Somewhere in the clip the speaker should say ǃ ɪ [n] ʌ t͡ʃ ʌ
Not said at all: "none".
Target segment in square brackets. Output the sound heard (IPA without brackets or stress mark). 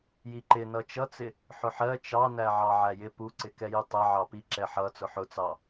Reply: n